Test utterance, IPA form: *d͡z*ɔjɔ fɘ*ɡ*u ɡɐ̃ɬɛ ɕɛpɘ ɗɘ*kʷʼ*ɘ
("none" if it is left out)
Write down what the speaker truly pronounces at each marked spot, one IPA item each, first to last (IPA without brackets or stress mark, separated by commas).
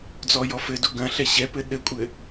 d͡z, d, kʷʼ